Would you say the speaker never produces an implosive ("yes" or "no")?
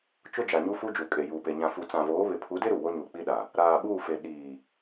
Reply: no